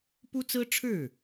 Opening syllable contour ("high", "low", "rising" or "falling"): high